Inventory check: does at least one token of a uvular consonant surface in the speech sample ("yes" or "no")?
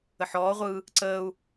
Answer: yes